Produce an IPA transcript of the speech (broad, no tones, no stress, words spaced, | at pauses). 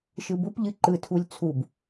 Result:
ʃɯbʊp ʎɨǃɯ tʰulʲt͡sʰub